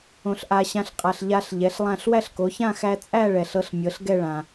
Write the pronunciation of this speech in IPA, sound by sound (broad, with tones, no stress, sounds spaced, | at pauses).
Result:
õ˨ ɬ ʔ a˨ ɕ ã˨˥ ɬ qʼ a˨ ɬ ʎ a˦˥ ɬ ʎ ɛ˨˥ ɬ lˠ ã˥˧ ɬ w æ˥˧ ɬ k o˨˥ ç ã˥˧ x æ˦˥ t͡sʼ æ˥˧ ɭ ɛ˨ ɬ ɤ˨˥ ɬ mʲ ɤ˨˥ ɬ ɡ ɛ˥˧ ɭ ã˨